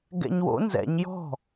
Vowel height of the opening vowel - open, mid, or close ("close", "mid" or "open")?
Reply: mid